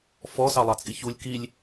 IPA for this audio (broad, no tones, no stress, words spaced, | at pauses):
fɔsɑlˠɑt͡sʼiç ulʲ kilʲ